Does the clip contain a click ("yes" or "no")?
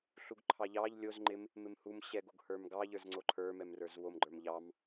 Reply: yes